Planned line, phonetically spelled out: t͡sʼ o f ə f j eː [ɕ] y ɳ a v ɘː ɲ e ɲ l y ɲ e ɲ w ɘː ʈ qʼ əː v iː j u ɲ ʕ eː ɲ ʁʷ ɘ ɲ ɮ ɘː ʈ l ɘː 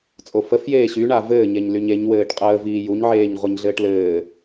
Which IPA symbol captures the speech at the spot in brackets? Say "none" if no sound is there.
ɕ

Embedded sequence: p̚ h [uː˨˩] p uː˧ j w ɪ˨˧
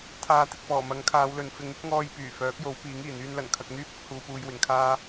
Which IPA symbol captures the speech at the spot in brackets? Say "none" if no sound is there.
uː˨˧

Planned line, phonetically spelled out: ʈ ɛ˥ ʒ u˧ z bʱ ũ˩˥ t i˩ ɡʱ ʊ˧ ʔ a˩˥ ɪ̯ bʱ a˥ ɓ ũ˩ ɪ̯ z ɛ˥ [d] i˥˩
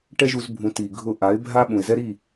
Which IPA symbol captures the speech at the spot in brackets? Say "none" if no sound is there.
ɾ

